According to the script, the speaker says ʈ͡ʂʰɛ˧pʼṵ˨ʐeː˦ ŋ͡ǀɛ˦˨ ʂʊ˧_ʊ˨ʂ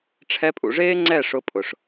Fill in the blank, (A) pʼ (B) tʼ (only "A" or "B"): A